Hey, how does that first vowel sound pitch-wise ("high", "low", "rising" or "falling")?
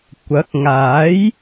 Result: rising